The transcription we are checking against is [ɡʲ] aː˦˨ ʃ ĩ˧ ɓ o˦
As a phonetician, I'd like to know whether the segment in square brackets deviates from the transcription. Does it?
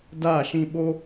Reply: yes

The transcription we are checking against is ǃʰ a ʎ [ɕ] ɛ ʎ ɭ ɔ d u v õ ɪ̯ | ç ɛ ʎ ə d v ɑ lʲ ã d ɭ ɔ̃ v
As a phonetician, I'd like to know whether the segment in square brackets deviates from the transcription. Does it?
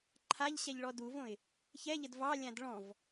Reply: no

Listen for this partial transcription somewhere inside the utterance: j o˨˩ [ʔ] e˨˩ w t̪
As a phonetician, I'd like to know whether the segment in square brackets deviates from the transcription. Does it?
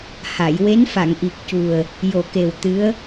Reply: yes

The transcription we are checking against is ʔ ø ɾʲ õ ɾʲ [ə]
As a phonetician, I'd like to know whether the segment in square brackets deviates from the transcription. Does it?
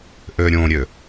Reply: yes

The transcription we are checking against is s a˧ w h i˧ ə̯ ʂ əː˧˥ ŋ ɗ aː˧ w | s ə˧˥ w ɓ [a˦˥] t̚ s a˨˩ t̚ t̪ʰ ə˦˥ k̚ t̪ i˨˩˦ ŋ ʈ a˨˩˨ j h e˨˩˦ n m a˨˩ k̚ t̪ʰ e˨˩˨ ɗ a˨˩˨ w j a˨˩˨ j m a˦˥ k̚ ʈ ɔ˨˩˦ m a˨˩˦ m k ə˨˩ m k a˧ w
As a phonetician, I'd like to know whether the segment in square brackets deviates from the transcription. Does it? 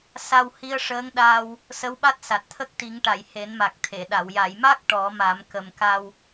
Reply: no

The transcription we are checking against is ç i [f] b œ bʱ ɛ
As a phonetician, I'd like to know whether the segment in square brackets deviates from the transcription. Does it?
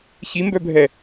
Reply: yes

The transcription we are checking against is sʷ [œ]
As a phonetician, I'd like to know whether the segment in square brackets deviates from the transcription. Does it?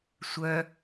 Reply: no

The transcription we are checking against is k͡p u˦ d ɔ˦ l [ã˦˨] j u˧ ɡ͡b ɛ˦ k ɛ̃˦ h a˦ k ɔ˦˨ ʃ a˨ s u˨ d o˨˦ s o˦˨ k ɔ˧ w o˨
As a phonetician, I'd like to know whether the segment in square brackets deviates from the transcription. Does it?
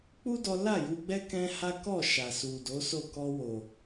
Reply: yes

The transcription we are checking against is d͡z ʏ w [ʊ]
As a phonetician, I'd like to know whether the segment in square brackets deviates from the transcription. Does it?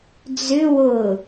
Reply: no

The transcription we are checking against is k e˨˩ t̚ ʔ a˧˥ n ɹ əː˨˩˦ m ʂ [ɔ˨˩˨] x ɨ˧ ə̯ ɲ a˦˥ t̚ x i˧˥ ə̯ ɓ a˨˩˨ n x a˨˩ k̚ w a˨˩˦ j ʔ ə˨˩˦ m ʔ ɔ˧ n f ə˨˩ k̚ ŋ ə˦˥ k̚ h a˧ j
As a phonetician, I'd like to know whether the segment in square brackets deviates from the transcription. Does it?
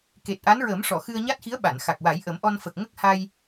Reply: no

